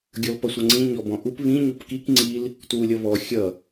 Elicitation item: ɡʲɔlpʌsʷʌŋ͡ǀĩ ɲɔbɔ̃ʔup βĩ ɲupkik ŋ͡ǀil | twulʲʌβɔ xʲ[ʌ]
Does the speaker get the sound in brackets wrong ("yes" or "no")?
no